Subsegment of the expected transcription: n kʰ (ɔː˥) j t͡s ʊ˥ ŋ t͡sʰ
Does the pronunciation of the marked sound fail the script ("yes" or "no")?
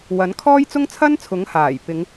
no